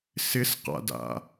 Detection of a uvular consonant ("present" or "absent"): present